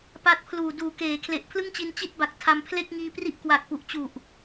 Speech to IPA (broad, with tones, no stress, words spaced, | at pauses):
pa˦˥t̚pʰluː˨˩ duː˨˩keː˩˦kʰle˨˩ʔ pʰlɯ˥˩ŋt͡ɕi˧n t͡ɕi˥˩t̚ba˨˩k̚ tʰa˧mpʰle˥˩k̚ŋiː˧ pri˥˩ʔkwa˨˩k̚pu˨˩ʔt͡ɕu˨˩ʔ